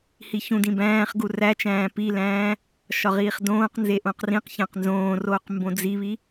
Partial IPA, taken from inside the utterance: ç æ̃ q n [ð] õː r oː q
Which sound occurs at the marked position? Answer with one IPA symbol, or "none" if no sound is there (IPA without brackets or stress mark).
z